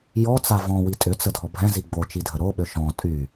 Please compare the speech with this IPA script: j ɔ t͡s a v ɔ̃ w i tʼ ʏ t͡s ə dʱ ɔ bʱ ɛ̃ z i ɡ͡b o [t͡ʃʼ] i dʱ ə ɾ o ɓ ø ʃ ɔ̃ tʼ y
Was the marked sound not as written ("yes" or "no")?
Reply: yes